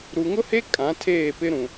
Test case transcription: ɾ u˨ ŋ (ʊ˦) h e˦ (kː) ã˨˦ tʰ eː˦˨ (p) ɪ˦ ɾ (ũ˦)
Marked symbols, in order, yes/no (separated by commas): yes, no, yes, no